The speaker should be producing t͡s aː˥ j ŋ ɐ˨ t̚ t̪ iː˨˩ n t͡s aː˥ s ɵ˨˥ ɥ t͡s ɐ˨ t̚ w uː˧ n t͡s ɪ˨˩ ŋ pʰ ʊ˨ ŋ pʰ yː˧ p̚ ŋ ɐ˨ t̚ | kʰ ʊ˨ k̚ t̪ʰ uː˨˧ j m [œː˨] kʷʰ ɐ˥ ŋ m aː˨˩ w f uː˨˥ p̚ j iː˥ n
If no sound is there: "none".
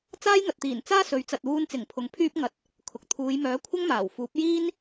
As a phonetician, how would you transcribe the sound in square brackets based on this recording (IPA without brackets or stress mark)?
œː˨˥